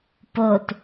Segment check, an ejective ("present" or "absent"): absent